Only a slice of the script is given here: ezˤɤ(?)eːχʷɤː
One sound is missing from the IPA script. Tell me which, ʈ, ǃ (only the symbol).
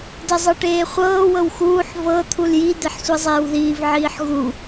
ʈ